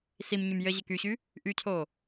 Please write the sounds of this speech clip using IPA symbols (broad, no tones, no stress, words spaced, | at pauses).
simɲym jɘʑɘk yɕy | ʔycʰo